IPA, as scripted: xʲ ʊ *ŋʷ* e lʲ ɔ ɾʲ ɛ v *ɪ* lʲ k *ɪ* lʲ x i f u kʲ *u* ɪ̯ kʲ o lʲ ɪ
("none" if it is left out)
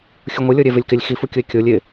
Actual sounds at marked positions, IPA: ŋʷ, ɪ, ɪ, ʊ

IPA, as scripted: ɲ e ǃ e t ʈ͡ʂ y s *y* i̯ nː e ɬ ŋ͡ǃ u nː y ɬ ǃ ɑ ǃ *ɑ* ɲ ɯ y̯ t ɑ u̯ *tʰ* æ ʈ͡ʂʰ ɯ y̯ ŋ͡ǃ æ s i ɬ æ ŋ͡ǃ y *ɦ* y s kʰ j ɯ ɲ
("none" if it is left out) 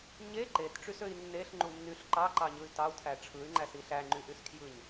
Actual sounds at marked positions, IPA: ø, ɑ, tʰ, ʔ

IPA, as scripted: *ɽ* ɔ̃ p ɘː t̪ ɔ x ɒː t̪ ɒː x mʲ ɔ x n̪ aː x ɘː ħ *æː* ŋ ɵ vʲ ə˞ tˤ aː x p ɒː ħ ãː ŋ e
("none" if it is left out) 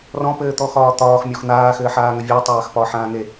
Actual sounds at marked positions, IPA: r, aː

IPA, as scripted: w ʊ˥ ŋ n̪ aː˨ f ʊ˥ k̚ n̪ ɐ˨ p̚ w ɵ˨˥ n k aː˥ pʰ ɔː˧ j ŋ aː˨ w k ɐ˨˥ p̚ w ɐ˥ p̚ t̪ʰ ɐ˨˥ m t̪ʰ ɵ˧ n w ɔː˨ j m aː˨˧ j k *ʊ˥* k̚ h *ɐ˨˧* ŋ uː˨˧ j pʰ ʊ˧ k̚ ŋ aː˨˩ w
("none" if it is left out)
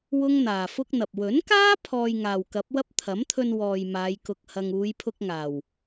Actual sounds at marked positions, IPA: ʊ˧, ɐ˧

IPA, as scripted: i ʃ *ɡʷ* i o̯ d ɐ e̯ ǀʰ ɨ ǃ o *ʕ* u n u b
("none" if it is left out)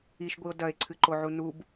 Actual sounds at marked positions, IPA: ɡʷ, ʕ

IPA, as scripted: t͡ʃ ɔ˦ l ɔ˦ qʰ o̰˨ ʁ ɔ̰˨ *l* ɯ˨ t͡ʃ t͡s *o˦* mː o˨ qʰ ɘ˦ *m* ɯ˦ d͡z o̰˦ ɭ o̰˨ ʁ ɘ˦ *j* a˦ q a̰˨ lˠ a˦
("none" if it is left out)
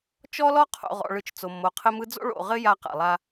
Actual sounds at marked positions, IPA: ɭ, o˨, m, j

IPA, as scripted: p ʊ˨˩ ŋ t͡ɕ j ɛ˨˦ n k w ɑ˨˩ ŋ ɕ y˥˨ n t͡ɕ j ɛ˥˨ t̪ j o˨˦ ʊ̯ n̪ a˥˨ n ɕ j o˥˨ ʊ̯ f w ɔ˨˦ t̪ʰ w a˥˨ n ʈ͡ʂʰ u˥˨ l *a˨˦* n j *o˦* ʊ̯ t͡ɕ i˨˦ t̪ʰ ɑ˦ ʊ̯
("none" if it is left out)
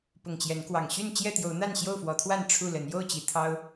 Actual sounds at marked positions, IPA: ə˨˦, o˥˨

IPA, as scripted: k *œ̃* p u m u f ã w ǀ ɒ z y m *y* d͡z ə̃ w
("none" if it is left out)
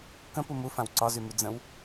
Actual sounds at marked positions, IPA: ə̃, y

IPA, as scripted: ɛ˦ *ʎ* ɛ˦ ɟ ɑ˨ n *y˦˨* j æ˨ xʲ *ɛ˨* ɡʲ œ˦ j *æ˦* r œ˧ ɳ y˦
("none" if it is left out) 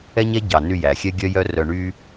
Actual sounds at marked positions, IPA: ɲ, y˦˨, ɛ˦, œ˦

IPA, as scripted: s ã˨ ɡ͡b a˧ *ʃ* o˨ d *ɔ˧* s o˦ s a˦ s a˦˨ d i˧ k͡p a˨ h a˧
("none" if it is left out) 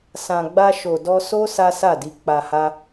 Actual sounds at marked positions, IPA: ʃ, ɔ˧

